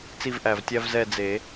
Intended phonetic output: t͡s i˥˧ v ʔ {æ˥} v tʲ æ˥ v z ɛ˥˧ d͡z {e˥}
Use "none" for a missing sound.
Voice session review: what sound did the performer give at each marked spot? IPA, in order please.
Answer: æ˧˩, e˨˩˦

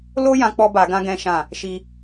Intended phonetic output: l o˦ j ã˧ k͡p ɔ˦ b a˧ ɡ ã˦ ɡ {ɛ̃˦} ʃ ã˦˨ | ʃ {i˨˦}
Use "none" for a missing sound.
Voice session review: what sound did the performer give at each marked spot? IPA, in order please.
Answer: ɛ̃˦, i˦

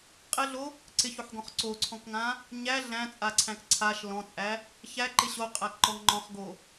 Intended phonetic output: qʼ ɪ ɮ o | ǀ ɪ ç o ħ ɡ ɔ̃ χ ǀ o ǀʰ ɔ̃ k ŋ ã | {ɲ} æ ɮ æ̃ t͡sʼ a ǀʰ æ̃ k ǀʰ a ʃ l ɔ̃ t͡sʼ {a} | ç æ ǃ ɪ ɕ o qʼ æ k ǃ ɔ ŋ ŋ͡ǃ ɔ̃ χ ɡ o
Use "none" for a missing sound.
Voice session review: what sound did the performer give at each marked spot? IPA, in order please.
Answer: ɲ, æ

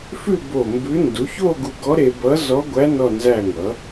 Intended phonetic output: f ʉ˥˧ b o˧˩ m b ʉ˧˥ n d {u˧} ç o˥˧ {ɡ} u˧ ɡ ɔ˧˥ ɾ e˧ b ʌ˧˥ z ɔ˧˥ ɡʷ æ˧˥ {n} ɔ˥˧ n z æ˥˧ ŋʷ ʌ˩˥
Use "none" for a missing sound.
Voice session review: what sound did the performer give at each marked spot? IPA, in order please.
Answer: u˩˥, ɡ, n

